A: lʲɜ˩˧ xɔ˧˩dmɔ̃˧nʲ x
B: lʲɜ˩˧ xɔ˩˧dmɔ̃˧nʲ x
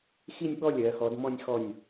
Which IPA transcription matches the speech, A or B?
B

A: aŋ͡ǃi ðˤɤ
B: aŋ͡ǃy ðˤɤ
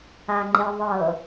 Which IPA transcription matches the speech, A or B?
A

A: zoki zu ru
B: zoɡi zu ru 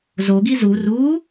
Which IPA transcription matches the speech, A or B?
B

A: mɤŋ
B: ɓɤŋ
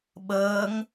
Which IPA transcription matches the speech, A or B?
B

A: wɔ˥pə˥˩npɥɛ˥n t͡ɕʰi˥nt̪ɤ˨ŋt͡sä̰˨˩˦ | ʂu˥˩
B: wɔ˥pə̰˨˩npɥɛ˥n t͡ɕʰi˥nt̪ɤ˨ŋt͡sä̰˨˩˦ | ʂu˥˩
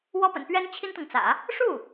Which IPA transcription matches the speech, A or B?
B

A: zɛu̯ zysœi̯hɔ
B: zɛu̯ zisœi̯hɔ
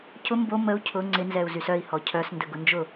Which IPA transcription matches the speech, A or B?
A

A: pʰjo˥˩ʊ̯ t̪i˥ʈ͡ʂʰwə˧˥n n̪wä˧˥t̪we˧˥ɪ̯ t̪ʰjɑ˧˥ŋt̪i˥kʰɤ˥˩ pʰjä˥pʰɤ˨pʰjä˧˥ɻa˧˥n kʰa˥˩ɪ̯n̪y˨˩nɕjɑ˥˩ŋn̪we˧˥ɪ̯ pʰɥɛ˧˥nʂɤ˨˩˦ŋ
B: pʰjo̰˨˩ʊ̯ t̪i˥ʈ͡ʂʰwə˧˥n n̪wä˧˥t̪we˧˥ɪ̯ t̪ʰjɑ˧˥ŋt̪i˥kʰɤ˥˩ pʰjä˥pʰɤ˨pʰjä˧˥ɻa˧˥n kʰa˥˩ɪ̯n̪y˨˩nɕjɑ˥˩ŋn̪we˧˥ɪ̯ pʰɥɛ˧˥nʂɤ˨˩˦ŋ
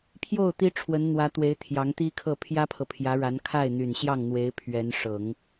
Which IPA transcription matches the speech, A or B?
A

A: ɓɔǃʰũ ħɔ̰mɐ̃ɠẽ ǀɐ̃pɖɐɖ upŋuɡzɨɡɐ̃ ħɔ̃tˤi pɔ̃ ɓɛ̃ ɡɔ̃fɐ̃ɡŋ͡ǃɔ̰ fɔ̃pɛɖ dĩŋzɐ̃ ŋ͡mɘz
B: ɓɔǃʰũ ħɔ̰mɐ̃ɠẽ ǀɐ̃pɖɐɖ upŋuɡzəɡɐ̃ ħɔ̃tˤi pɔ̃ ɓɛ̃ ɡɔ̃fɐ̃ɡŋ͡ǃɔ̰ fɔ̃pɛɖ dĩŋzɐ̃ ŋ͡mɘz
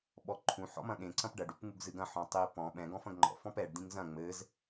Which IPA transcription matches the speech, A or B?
A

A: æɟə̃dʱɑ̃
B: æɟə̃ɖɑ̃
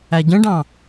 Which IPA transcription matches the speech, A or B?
B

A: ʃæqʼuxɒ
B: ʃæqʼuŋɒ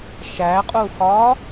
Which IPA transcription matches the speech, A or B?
A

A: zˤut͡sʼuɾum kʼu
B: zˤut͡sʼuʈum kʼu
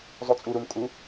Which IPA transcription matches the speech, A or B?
A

